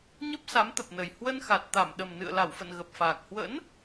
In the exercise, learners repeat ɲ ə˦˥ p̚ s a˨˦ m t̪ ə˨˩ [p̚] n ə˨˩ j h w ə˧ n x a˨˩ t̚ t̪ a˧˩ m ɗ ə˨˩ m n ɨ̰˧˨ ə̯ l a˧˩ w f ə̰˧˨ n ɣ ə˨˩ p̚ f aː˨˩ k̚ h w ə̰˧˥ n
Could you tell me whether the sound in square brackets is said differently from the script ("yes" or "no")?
no